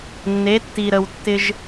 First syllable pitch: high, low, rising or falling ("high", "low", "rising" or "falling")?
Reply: rising